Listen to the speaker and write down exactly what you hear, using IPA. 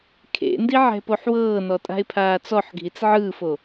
kʰ ḛ n d i ʕ ɛ̤ p o ħ w ɤː n ɔ tʼ a̤ ɪ̯ pʰ aː t͡s ɔ ħ ɡʱ i t͡s ʕ ɯː f o

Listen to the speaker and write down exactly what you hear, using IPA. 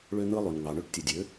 ɭ ø˧ n̪ ɯ˧ lˠ y˩ n ŋ ɑ˩ ɳ ø˧˥ ʈ tʲ ɯ˩ dʲ ø˩˧

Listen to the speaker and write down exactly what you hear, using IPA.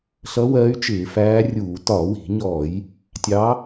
ɬ ʌ˧˥ w ɜ˧˥ y̯ t͡ʃ ɪː˧˩˧ f æː˧˥ rʲ uː˧˩˧ t ɒ˧˩˧ w i̤˧˩˧ ɲ ɔː˧˩˧ j | tʲ ɑ˧˥

